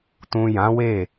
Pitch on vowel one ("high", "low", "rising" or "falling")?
low